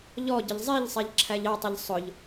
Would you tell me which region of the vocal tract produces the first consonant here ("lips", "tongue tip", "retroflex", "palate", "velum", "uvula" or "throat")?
palate